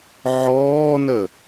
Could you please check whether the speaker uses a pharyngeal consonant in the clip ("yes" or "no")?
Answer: yes